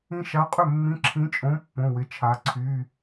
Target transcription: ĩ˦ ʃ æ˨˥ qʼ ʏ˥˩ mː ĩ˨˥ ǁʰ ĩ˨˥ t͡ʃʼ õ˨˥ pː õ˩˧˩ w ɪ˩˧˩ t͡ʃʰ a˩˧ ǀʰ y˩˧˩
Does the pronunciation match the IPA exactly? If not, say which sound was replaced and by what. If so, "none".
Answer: æ˨˥ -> a˨˥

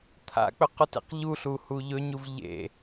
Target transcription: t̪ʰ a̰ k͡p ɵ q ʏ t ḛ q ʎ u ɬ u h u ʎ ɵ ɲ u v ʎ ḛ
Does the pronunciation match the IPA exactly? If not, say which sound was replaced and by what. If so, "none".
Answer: ʏ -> u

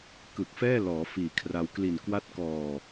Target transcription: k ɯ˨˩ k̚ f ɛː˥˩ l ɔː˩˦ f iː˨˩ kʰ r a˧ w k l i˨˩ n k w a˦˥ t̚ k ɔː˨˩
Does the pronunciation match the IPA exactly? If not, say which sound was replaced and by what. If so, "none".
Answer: none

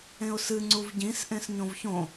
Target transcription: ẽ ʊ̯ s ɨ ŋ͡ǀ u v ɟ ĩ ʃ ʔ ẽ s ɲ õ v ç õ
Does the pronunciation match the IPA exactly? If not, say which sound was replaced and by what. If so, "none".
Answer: ʃ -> s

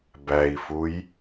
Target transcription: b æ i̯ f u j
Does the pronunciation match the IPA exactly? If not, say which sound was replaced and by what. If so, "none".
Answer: none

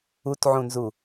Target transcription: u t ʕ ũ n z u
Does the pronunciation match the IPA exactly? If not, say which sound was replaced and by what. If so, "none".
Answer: none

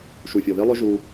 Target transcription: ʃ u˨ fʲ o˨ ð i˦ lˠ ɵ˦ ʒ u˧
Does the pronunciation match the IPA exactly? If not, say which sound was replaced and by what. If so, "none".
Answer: none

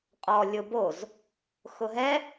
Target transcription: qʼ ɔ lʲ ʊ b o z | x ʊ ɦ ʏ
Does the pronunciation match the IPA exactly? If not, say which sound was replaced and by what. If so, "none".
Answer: ʏ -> ɛ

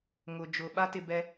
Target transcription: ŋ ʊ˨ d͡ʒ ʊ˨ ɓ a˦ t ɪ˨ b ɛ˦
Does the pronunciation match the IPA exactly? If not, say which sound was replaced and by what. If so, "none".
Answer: none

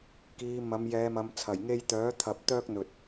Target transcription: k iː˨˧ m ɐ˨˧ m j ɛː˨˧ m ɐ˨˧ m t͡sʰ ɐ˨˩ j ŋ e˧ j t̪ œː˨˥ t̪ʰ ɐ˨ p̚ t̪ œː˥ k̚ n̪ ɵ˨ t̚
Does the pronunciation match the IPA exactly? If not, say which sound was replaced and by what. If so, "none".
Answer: none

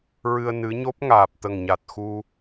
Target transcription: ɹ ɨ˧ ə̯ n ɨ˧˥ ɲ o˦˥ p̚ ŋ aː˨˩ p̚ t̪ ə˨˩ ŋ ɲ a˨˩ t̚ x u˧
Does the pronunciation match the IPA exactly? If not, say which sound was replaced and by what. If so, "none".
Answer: none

